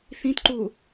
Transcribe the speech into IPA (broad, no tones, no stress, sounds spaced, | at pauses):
θ ĩ t ǃ u